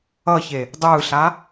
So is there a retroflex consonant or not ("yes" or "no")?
no